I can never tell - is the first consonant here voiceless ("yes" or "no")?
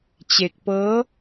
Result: yes